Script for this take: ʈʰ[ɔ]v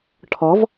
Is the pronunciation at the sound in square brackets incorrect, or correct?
correct